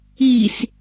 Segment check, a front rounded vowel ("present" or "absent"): absent